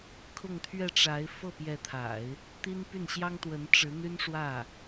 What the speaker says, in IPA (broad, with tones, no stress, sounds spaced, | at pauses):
kʰ ʊ˥˧ ŋ t̪ʰ ɥ ɛ˥˩ ʈ͡ʂ a˧˥ ɪ̯ f ɤ˥˩ p j ɛ˧˥ t̪ʰ a̰˨˩˦ ɪ̯ | t̪ i˥ n p y˥˩ n ɕ j ɑ˥ ŋ t̪ w ə˧˥ n ʈ͡ʂ ɻ̩˧˥ n̪ y˥ n ʂ w ä˥˩